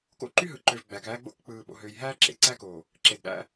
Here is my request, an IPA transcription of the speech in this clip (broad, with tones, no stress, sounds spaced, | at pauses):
k o̰˦ ǃ y˦ ɦ ɯ˨ ǃ ø˨ v ɡ͡b æ˨ k æː˦ ɡ͡b o̰˦ k k͡p ɯː˨ ɓ o̰˨ ɦ øː˨ j ɦ æː˦ ǁ ḛ˨ ǀ æ˦ k oː˨ | ǁ e˨ d ɗ æ̰˦